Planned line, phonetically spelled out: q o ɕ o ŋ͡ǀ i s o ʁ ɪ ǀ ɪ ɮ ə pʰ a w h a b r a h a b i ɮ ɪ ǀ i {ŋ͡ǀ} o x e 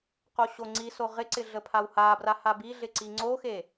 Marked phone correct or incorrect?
correct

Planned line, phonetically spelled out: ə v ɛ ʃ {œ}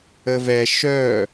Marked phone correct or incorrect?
correct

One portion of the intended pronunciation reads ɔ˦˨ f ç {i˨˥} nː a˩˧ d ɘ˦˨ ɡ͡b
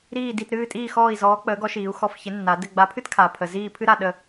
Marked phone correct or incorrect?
incorrect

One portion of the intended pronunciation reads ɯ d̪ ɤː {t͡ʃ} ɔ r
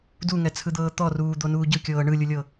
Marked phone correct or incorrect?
incorrect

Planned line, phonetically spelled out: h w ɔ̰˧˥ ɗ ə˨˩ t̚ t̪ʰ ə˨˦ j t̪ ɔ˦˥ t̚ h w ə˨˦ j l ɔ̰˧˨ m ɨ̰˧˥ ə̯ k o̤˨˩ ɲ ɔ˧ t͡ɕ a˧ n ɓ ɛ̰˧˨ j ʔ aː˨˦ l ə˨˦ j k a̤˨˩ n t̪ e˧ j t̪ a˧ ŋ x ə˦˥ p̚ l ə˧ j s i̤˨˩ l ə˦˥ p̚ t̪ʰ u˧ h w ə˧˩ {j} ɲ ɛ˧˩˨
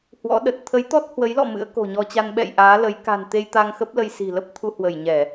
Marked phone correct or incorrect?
correct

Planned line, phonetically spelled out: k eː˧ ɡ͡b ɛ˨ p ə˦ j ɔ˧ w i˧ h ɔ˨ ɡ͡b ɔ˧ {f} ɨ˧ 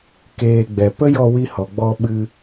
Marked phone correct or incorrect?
incorrect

